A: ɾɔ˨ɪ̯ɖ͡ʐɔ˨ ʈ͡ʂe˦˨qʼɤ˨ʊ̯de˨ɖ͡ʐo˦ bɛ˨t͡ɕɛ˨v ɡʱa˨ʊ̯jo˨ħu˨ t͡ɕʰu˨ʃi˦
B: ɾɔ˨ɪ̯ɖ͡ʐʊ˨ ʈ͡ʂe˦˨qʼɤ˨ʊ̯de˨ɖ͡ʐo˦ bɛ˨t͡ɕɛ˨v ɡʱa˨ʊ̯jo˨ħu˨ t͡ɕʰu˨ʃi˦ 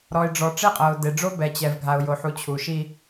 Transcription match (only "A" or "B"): A